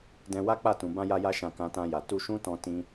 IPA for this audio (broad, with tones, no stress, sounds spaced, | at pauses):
d ɛ̃˧ w a˦ k͡p a˦˨ t ũ˨ b ã˧ j a˧ j a˧ ʃ ã˨ k ã˧ t ã˧ j a˨ t u˧ ʃ ũ˦ t ɔ̃˧ t ĩ˧